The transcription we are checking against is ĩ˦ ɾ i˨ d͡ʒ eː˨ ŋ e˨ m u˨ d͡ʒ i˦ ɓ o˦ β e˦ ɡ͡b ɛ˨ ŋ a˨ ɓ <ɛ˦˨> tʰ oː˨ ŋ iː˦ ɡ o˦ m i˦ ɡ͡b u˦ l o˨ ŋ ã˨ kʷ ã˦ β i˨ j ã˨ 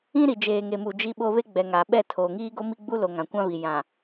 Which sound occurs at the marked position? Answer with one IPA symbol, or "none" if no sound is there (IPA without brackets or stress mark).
ɛ˦˨